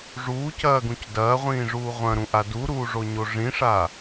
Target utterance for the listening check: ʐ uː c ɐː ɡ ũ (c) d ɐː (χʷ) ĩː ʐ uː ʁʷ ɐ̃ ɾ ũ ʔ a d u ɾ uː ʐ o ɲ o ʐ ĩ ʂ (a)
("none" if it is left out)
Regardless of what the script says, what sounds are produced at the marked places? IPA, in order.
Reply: c, ʁʷ, a

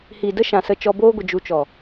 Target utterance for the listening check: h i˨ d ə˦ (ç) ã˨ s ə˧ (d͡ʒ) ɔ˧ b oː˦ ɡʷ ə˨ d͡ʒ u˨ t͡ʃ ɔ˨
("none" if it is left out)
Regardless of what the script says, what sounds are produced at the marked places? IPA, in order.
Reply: ʃ, t͡ʃ

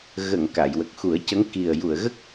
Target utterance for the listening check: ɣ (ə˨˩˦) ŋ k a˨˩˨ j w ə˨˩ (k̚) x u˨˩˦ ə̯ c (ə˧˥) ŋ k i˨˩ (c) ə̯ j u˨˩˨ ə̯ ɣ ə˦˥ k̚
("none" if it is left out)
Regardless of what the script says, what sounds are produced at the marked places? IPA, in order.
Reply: ə˨˩˨, k̚, ə˧˥, none

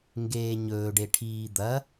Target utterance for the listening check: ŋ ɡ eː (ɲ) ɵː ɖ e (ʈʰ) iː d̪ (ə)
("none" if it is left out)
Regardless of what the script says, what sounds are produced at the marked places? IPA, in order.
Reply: ɲ, ʈʰ, ɐ

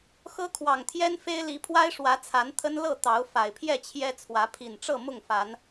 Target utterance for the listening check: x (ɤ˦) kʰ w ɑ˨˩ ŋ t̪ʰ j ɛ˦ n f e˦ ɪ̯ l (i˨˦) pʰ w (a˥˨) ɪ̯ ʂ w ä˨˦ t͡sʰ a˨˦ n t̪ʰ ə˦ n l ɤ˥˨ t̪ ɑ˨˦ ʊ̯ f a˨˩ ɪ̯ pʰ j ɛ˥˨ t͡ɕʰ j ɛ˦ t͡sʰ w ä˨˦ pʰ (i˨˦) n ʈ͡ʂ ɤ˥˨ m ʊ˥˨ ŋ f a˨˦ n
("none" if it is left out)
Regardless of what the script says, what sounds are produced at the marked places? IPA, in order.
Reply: ɤ˦, i˨˦, a˦, i˨˩

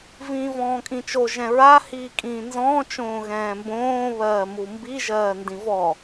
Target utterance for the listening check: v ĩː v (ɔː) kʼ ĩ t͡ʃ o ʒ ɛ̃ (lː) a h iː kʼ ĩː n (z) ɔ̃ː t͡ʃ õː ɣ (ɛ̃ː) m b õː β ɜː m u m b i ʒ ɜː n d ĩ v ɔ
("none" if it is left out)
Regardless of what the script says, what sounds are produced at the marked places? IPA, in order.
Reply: ɔ̃ː, ɹ, z, ɛ̃ː

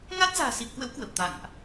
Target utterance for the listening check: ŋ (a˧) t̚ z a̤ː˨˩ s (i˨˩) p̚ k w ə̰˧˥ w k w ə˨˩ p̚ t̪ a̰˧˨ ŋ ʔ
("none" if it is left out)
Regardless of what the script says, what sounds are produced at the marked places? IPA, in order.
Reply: a˦˥, i˨˩

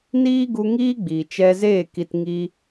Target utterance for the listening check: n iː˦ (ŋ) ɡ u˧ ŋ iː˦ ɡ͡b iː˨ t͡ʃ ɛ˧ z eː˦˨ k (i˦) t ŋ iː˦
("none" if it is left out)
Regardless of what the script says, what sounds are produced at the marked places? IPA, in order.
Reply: none, i˧

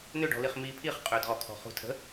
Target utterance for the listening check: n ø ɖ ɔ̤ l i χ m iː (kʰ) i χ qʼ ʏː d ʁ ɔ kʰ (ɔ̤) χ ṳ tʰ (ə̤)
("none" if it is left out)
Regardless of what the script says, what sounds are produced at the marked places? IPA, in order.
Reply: pʰ, ɔ̤, ə̤

